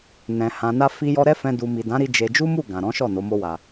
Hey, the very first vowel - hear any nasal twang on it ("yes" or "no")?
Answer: yes